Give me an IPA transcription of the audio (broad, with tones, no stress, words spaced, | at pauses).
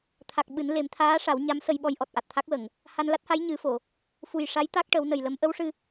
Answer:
t̪ʰa˨˩k̚ ɓɨ˨˩˦nle˨˩˦m t̪ʰaː˧˥ʂa˨˩˦w ɲa˧˥msə˧jɓɔ˧jʔɔ˨˩t̚ ʔa˨˩t̚t̪ʰa˦˥k̚wə˨˩˨ŋ | ha˧n la˦˥t̚ha˧˥j ɲɨ˨˩˦fo˨˩˨ | fu˨˩jʂa˧˥j t̪a˦˥k̚ʈə˨˩˦wnə˨˩jlə˧˥m ʔə˧˥wʂɨ˧